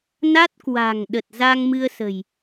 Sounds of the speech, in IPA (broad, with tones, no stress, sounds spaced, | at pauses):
n a˦˥ t̚ k w a̤˨˩ ŋ ɗ ə˨˩ t̚ z a˧ ŋ m ɨ˧ ə̯ s ə̤˨˩ j